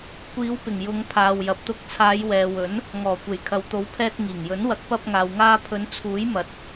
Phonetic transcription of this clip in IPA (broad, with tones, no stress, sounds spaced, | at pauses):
kʷ iː˨˧ w p ɪ˨˩ ŋ j ʊ˨˧ ŋ pʰ aː˨ w j ɐ˨ p̚ t̪ ʊ˧ k̚ t͡sʰ aː˨˧ j w ɛː˨ w ɵ˨˥ n | ŋ ɔː˨˩ kʷ e˨˩ j kʰ ɐ˨ w t̪ o˨˥ w pʰ ɛː˧ t̚ ŋ iː˨˩ ŋ j ɵ˨˥ n w ɐ˨˥ k̚ p ɐ˧ p̚ ŋ aː˨ w ŋ aː˧ pʰ ɵ˨˧ n t͡sʰ uː˨˥ j m ɐ˨˥ t̚